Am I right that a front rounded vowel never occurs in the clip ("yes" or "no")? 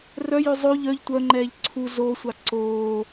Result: no